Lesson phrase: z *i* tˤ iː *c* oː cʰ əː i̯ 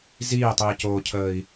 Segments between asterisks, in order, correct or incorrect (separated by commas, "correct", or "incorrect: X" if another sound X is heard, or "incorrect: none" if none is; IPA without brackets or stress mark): incorrect: iː, correct